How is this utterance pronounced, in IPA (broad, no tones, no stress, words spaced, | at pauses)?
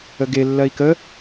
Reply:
əɡe lːɜi̯kə